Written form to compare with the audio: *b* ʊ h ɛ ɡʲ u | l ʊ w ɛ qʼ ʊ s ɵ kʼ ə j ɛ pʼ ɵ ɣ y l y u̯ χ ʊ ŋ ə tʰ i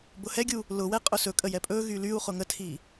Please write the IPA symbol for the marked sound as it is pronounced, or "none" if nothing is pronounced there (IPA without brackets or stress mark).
b